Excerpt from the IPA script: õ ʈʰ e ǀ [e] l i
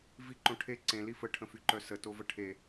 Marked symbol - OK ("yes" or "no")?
no